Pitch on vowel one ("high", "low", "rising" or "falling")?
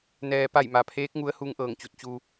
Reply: low